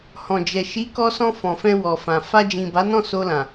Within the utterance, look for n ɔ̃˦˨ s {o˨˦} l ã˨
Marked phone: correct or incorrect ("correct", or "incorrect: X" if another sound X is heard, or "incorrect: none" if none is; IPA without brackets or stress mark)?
incorrect: o˧